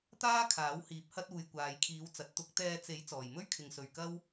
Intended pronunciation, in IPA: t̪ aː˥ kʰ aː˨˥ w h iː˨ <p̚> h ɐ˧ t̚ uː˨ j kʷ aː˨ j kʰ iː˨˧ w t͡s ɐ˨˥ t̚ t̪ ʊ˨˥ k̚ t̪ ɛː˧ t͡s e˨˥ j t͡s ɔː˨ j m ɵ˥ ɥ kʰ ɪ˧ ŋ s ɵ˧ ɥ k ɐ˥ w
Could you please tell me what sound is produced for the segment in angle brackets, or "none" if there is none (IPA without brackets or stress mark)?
p̚